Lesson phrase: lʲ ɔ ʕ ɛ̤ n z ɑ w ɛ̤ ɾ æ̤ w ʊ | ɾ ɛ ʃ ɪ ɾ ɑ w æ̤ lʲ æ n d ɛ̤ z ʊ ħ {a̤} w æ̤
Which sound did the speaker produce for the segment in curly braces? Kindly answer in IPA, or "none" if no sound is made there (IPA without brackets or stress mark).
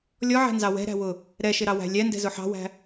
ɑ̤